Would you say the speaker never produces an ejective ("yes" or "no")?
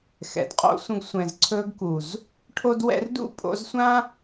no